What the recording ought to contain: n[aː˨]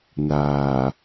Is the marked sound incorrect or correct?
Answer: correct